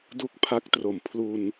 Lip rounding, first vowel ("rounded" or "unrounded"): rounded